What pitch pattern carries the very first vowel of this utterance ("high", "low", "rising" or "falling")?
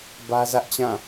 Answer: high